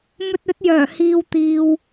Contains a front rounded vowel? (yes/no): yes